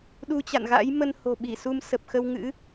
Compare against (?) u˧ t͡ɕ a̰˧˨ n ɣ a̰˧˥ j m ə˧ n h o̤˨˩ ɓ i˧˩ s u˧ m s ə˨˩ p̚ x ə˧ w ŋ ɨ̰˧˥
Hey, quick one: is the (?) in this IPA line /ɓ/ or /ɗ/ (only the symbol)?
ɗ